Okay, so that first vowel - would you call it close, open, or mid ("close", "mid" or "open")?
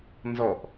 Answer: mid